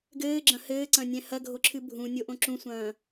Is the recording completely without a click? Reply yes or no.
no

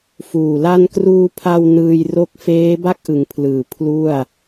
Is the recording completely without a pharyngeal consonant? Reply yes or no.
yes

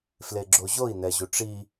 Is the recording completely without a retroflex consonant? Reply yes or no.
no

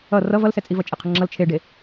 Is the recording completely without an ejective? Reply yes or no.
no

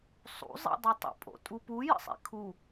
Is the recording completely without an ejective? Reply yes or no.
no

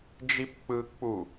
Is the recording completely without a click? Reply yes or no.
yes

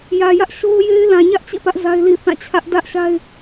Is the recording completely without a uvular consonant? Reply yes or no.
yes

